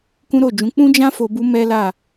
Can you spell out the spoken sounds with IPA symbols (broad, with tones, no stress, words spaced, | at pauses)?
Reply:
kũ˦ɾo˦˨d͡ʒũ˨˦ k͡pũ˦d͡ʒã˦ fo˧bu˦ mɛ˦la˦˨